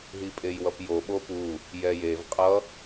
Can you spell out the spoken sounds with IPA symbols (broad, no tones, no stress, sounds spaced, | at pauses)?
ɦ i pʼ e j w ʌ p j o ɓ o p u | j ɛ j e v qʼ ʌ